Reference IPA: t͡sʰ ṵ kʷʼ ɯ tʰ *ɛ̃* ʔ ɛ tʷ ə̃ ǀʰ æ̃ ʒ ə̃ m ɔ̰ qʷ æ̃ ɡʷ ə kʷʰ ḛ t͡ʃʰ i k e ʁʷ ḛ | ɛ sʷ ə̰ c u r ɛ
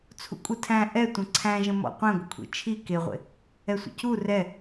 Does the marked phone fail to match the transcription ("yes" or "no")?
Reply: yes